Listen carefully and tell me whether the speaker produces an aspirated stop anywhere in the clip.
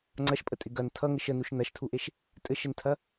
yes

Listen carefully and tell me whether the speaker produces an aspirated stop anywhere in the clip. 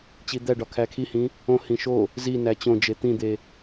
yes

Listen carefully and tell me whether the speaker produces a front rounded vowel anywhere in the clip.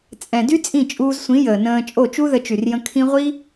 yes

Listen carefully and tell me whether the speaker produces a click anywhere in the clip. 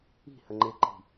yes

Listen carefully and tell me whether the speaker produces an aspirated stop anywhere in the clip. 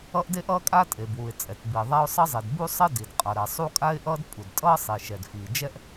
no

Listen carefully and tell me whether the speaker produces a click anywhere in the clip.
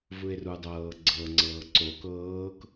yes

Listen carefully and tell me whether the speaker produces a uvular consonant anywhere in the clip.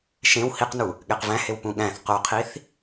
yes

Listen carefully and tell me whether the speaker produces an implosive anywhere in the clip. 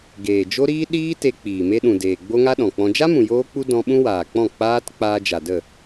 yes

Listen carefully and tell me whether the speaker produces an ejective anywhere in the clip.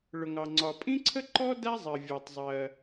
yes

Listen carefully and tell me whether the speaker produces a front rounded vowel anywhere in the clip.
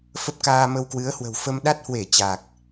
no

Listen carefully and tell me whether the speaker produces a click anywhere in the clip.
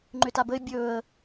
yes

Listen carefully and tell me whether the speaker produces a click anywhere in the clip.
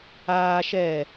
no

